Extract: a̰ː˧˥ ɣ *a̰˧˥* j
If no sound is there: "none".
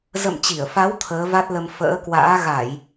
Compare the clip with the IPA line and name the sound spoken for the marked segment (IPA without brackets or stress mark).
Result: a˧˩˨